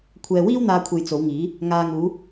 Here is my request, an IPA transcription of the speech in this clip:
kʷʰ ɛː˨ w iː˥ w n̪ aː˧ kʷʰ e˨ j t͡s o˨˧ w ŋ iː˨˥ | ŋ aː˨ ŋ uː˨˧

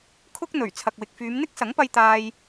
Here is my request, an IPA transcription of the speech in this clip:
kʰ ʊ˥ k̚ n̪ ɵ˨˩ ɥ t͡sʰ ɐ˨ k̚ w ɪ˨ k̚ f yː˨˧ m n̪ ɪ˥ k̚ s ɐ˨˥ ŋ p ɐ˧ j t̪ aː˧ j

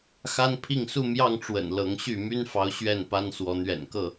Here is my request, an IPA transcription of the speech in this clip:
x a˦ n pʰ i˥˨ ŋ s u˥˨ m j ɑ˥˨ ŋ ʈ͡ʂ w ə̰˨˩ n l ɤ˨˦ ŋ ɕ y˥˨ m y˦ n f ɑ˨˦ ʊ̯ ɕ ɥ ɛ˥˨ n p a˦ n s w ɔ˨˦ n̪ ɥ ɛ̰˨˩ n k ɤ˥˨

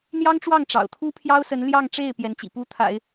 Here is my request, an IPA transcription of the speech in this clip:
n̪ j ɑ˥ ŋ ʈ͡ʂ w ɑ˥˩ ŋ ʈ͡ʂ ɑ̰˨˩ ʊ̯ t̪ʰ u˥ pʰ j ɑ˥ ʊ̯ s ə˧˥ n l j ɑ˥˧ ŋ ʈ͡ʂ e˥˩ ɪ̯ p j ɛ˧˥ n t͡ɕ ḭ˨˩ p u˥ t̪ʰ a̰˨˩˦ ɪ̯

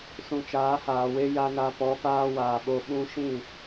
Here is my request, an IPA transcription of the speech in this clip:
s ũ˨ t͡ʃ aː˨˦ h aː˨ w e˦ j a˧ n a˧ p ɔ˨˦ f aː˦ w aː˨ ɓ o˧ ɓ ũ˧ ʃ ĩ˦˨

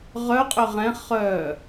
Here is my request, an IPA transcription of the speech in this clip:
ʁ œ qʼ ʏ ʁ ɛ̃ χ œ

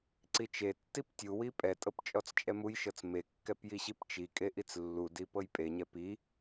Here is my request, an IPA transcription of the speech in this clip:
ǀ i t͡ʃ e tː i p tʲ u w i pʼ ɛ tʼ ɤ p t͡ʃʼ ɔ t͡s t͡ʃʼ ɛ m u j ʃ ɤ t͡s m e kː ɛ p j i ɕ i p t͡ʃ i kʼ e ʔ i t͡s lː u d i p ɤ j pʼ e ɲ ɛ p i

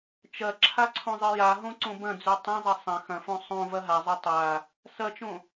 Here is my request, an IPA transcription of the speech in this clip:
t͡ʃ ɐ ǁʰ a ǀʰ õ zˤ ɨ j a ɦ õ ǀ õ b ɐ̃ d͡z ʉ tˤ ɐ̃ zˤ ɐ sˤ ɐ̃ x ɐ̃ f õ sˤ õ v ɐ ɦ a zˤ ɵ tˤ a | s ɐ t͡ʃ õ

